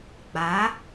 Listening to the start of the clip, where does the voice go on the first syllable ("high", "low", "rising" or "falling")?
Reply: rising